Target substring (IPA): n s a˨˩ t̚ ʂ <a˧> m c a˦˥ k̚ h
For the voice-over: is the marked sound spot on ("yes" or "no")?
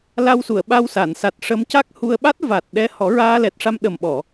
no